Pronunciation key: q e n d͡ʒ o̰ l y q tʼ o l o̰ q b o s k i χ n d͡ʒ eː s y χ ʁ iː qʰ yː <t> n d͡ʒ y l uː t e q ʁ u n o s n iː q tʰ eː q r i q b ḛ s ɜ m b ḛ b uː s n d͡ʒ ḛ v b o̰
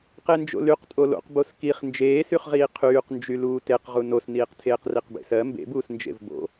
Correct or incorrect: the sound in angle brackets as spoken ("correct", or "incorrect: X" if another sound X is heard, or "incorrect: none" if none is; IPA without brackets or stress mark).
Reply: incorrect: q